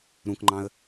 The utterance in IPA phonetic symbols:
ɾ ũ k ŋ͡ǃ ɑ̃ ə̯

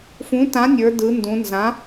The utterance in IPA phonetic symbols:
f ũ˩˥ t ã˩˥ nʲ ə˞˩˧ d ɯ˩˧ n d ũ˩˧ n z ã˩˥

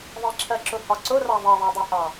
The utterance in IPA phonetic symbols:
ðˤ i ǁʰ ɜ ǁ ʊ h ɒ ǀ ʊ r ɑ ðˤ ɛ ðˤ æ dˤ ɛ h ɑ

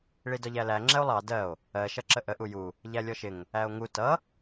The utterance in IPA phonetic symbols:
ɭ i d ɒ ʎ æ l æ ŋ͡ǁ ɛ o̯ lˠ ɑ d ɜ o̯ | ɜ ʃ ʌ ǁ ə ʔ ə ʔ u j u | ʎ æ lʲ ɔ ʃ ɪ ŋ | æ o̯ ŋ u t ʌ

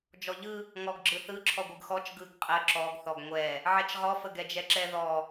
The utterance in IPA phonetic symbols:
d͡ʒ ɔ ʎ ɯ | ŋ ɔ ɡ ɡ͡ǁ ɯ θ ɯ ǁʰ ɔ ɡʷ ɯ ɡ x ɔ t͡ʃ ɡ ɯ ɡ qʼ ə ǁ ɔ ɡ θ ɔ ɡ ŋʷ ɛ | ʕ ɛ t͡ʃ ʁ ɔ f ə ɡ ɛ d͡ʒ ɛ ǁ ɛ ð ɔ

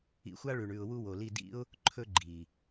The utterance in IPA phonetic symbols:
ḭ˧ xʷ a˦ ɭ ʉ˨ ɳ ʉ˨ ʊ̯ w u˧ w o˨ l i˦˨ d ḭ˦ ʊ̯ | ǃʰ ɵ˦ ɡ͡ǃ i˨

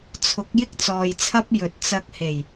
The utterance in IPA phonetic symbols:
t͡sʰ ʊ˨˥ k̚ j ɪ˥ k̚ t͡s ɔː˨ j t͡sʰ ɐ˥ p̚ j ɵ˨ t̚ t͡s ɐ˧ k̚ h e˨˩ j

